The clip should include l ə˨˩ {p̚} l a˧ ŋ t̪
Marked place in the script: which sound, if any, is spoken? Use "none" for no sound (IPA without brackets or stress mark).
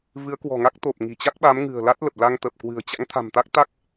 p̚